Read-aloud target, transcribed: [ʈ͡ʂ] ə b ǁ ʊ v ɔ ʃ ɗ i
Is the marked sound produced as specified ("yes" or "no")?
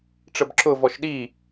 yes